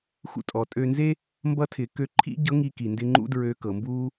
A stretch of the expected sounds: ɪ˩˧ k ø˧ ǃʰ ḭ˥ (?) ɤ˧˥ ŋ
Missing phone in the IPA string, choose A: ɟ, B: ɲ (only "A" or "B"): A